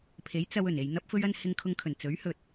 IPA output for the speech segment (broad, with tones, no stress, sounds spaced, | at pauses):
pʰ e˨˥ j t͡s ɐ˧ w ɵ˨˩ n e˨ j n̪ ɐ˥ p̚ f ɵ˥ ɥ ɐ˥ n h ɪ˧ ŋ kʰ ʊ˧ ŋ kʰ ɵ˨˩ n t͡s ɵ˨˥ ɥ h ɵ˨ t̚